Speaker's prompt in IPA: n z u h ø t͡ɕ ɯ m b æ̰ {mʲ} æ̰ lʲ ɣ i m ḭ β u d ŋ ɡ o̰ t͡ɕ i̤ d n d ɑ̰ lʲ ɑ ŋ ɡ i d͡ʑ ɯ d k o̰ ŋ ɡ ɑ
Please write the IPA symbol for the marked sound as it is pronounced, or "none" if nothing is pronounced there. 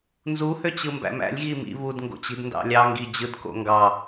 m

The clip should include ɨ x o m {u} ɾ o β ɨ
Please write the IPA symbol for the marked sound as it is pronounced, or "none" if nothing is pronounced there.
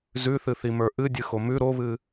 ʉ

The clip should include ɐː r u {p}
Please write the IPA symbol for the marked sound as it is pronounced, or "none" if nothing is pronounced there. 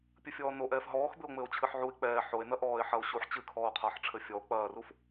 f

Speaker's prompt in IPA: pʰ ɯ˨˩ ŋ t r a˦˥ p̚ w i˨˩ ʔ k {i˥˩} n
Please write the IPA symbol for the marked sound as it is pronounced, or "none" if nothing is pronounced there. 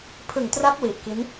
i˦˥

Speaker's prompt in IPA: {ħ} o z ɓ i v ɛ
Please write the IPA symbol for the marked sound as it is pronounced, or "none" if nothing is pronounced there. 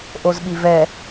ʔ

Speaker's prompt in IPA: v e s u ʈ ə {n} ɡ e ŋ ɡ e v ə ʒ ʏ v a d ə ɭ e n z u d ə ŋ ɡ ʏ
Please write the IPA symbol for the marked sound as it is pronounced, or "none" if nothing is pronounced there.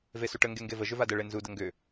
ŋ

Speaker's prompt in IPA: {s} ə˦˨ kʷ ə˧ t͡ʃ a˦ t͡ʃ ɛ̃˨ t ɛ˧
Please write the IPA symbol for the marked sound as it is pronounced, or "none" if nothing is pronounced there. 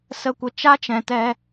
s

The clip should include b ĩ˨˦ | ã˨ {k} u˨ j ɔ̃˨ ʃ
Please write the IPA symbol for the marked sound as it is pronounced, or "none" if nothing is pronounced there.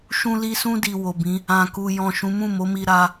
k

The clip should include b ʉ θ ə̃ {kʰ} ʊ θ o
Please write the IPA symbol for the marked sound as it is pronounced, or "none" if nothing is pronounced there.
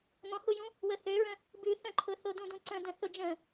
ǃʰ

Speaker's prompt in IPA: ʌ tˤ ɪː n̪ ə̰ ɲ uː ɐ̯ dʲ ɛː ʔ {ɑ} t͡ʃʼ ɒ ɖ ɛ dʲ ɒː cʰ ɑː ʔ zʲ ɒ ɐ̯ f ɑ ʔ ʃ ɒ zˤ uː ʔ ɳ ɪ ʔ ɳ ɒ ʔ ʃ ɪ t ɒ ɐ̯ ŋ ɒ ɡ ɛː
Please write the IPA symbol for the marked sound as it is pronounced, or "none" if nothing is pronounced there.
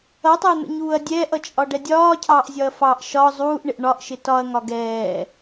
ʌ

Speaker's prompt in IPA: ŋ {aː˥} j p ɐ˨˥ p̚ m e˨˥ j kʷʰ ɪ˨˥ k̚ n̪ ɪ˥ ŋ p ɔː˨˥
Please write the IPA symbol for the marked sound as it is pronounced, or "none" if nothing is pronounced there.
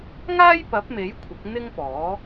aː˥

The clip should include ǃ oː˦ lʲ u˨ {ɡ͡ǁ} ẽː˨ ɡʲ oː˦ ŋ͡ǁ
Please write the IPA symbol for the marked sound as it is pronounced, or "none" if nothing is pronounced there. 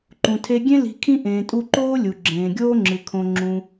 ɡ͡ǁ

